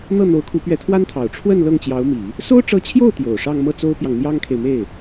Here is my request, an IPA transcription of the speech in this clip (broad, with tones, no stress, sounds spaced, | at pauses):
n̪ ɤ˥˩ n̪ o˧˥ ʊ̯ kʰ u˧˥ p ɥ ɛ˧˥ t̪ʰ w a˥ n t̪ʰ ɑ˨˩ ʊ̯ ʈ͡ʂʰ w ə˥˧ n l ɤ˥˩ ŋ t͡ɕ j ɑ˧˥ ʊ̯ m i˨˩˦ | s o˥ ʊ̯ ʈ͡ʂ ɤ˧˥ t͡ɕʰ j o˥˩ ʊ̯ t̪ j o˨˩ ʊ̯ ʂ ɑ˥˧ ŋ m ɤ˥˩ t͡s o˥ ʊ̯ p j ɑ˨ ŋ n̪ j ɑ˥ ŋ kʰ e˨ ɪ̯ m e˥˩ ɪ̯